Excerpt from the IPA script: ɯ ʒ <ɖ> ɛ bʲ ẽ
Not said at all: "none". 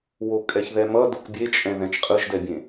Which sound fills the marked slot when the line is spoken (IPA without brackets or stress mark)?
d